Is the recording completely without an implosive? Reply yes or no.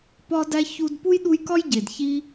no